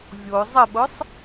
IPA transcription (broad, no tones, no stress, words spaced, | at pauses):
vʲo zˤəɓʊsˤ